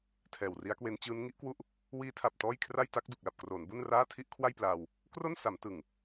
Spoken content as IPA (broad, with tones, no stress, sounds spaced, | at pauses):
tʰ ɛː˨˩ w r i˦˥ a̯ k w e˦˥ n t͡ɕ ɯː˦˥ n ŋ i˦˥ ʔ k w u˥˩ ʔ | w iː˦˥ tʰ a˨˩ p̚ t ɔː˥˩ j kʰ r a˥˩ j t a˦˥ k̚ d u˨˩ k̚ l a˨˩ p̚ k r oː˩˦ n b u˥˩ n r aː˥˩ tʰ i˥˩ ʔ kʰ w a˥˩ j p l aː˧ w | k r o˥˩ n s a˩˦ m t ɯ˨˩ ŋ